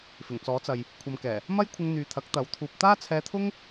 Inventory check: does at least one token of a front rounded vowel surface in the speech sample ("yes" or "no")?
yes